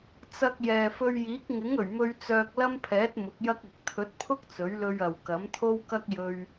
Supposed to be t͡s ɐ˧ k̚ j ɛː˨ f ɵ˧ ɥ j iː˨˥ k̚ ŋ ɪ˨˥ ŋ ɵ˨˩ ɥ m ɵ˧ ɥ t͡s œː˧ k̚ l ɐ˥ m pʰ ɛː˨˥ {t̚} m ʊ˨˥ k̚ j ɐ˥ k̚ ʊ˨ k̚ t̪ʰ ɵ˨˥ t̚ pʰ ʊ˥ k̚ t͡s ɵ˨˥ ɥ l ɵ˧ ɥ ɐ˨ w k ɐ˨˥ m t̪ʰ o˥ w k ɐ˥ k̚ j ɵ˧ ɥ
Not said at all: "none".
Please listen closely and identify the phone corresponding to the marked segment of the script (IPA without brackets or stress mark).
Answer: t̚